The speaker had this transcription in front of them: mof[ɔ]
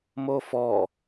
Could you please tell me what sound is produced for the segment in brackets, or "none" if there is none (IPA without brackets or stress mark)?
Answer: ɔ